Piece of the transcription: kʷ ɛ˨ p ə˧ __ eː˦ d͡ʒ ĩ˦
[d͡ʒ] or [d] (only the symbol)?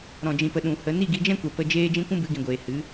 d͡ʒ